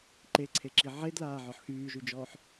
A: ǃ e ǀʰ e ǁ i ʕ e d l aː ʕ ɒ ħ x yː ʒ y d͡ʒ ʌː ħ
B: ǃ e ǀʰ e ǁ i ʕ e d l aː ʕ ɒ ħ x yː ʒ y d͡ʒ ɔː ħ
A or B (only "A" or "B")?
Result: B